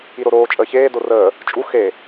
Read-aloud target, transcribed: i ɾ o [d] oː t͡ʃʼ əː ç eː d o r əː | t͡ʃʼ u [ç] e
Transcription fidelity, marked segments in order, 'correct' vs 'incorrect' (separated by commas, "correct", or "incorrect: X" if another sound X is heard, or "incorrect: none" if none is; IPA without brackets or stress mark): incorrect: ɾ, incorrect: x